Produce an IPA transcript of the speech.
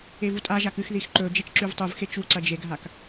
e v u tʼ a ʒ a k ɨ x ð i x ǃ ɵ d͡ʒ ɐ t͡ʃ ǁ ʉ v tˤ u v x e t͡ʃ u ǀ ɐ d͡ʒ e ɡʱ a k

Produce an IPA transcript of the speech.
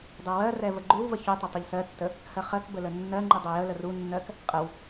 dˤ ɛ w ɜ r ɛ v ə ɡ͡ǃ ʉ w v ə ç ʉ tˤ ə tˤ u ʎ s ɜ tː ə | h ɜ χ ɜ k b ə l ə nː ɜ ŋ͡ǃ ʉ dˤ ɛ j ə l ə r u nː ɜ k | qʼ ə w

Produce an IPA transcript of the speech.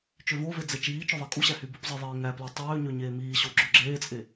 t͡ʃ ø v o v e d͡z e t͡ʃ iː t͡ʃ ɵ ðˤ ɛ kʼ u ɕ æ h y b u p zˤ i ðˤ eː ŋ æ p l æ tˤ øː ɲ ø ɲ eː m iː ɕ o ɡ͡ǁ ø ɡ͡ǁ eː t͡sʼ e

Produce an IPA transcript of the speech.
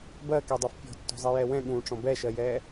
b ɜ k ɛ dˤ ɯ f pʲ ɔ̤ tː ɔ̤ zˤ i j ɛ w ɛ̃ ɠ ũ ʈ͡ʂ ɔ̃ b ɛ ʃ ɜ j ɛ

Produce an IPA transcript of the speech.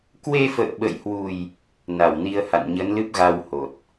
k w e˧ f ə̰ː˧˨ ɓ ə̰˧˨ j h w u˨˩ j | n a˧˩ w n i˧ ə̯ h a̰˧˨ n ɲ ə˨˦ n l ɨ˦˥ p̚ ɣ a˧ w h o˨˩ t̚

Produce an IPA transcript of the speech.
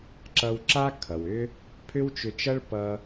ǁ ʌ˧ w ǁ a˥ kʰ ʌ˩ w ʏ˥ | pʰ ʏ˥ w t͡ʃ ʏ˧ t͡ʃ ʌ˥ ɭ p ʌ˧

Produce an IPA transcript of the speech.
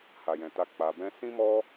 h a˨ j ɛ̃˨ t a˧ k͡p a˧ b ɛ̃˦ s ĩ˦ m ɔ˦

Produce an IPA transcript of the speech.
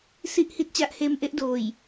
s i˥˩ ʔ h i˦˥ t̚ t͡ɕ a˦˥ ʔ h eː˦˥ m ʔ e˦˥ ʔ d oː˨˩ j

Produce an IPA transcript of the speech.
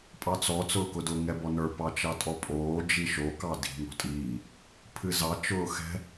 pʼ ɑ t͡s ɔ t͡s ʊː k ʊ d ʊ ŋ ɛ b ɔ n ə˞ p ɑ t͡ʃ ɑ tʼ ɔ pʼ oː d͡ʒ i ʃ o k ɑ d i̤ ŋ ɔ̤ tʼ iː | pʰ ɨ z ɑ t͡ʃ ʊː x ɛ̤

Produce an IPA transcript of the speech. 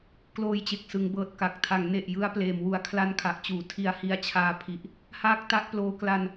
k l oː˧ j t͡ɕ e˨˩ k̚ s ɯ˩˦ ŋ b ɤː˨˩ t̚ k a˨˩ k̚ tʰ a˩˦ ŋ n e˨˩ ʔ j ɯ˦˥ a̯ p l eː˨˩ m w u˨˩ a̯ kʰ l a˧ n kʰ a˨˩ ʔ t͡ɕ uː˩˦ tʰ i˧ a̯ h i˧ a̯ t͡ɕʰ aː˧ pʰ i˨˩ ʔ | h aː˥˩ k̚ t a˦˥ ʔ p l oː˧ k l a˧ n

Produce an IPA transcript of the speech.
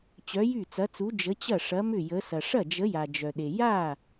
t͡ɕ œ˨˥ j y˥˩ t͡s ɐ˨˥ t͡s u˨˥ d͡ʒ ə˨˥ t͡ɕ ɐ˥˩ ʂ ɐ˨˥ m ʏ˥˩ j ə˨˥ s ɐ˩ ʂ ɐ˥˩ d͡ʒ ə˨˥ j a˩ d͡ʒ œ˩ ɗ e˩ j a˥˩

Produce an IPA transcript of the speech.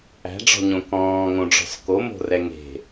æ̤ ɖ͡ʐ ɔ̤ ɲ õ k ɔ̃ː ŋ õ ɖ͡ʐ ɔ̤ s k o m o̤ r ɛ ŋ e̤

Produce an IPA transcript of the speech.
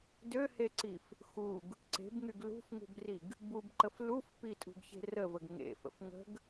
d ø h e ǀ i f | x u ɡ | ǀ e̤ b ŋ y ɡ l ṳ f ŋ ṳ b r i ɡ | b u b ǃ ə f l u f p i tʼ ṳ ɡ ç e̤ r ə v ə ɡ ŋ ḛ f ə̰ f ŋ ə̤ ɡ

